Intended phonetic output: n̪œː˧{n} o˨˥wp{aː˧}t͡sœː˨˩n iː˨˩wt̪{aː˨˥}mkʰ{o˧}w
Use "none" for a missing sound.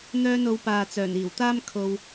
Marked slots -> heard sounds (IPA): n, aː˨, aː˥, o˧

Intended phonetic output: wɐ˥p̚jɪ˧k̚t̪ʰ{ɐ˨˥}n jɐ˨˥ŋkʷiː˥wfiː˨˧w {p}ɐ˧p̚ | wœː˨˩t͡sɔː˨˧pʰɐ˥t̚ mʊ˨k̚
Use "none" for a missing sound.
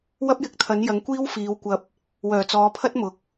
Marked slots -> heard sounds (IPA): ɐ˨˥, kʷ

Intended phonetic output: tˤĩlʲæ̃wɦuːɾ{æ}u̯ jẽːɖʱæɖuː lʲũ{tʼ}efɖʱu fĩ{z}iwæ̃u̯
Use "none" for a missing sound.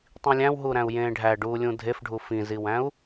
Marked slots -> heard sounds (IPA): æ̃, dʱ, z

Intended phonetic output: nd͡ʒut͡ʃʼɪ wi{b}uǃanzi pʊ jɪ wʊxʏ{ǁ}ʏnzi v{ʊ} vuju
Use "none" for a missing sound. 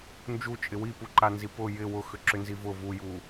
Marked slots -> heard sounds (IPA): p, ǁ, ʊ

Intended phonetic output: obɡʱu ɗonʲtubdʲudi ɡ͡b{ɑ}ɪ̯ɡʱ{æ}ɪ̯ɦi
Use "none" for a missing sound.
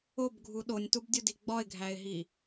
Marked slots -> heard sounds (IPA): ɒ, æ

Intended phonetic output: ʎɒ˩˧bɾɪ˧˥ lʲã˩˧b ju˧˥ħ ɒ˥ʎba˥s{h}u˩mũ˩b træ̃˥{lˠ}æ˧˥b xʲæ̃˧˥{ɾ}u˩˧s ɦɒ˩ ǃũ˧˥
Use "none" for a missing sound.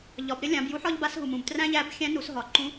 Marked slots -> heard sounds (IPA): ɦ, ʎ, n

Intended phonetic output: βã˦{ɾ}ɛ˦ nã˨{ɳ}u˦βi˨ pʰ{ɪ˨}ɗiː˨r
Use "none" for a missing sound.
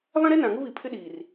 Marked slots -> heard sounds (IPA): ɾ, ŋ, ɪ˦

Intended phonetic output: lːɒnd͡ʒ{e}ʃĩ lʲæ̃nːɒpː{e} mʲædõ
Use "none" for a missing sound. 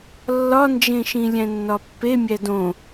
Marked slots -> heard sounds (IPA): ẽ, e

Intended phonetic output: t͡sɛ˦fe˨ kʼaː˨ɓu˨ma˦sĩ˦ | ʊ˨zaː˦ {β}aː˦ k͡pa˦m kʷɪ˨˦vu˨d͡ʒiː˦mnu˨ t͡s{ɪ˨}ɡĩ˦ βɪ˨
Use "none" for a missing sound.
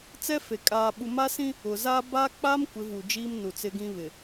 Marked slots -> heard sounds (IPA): b, ɪ˦

